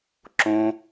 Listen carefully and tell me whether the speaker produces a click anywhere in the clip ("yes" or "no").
yes